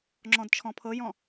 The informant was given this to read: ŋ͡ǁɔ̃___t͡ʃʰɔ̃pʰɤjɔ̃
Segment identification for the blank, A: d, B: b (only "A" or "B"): A